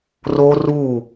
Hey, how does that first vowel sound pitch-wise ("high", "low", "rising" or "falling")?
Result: high